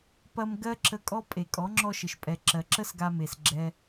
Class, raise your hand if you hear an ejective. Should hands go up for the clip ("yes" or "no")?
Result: yes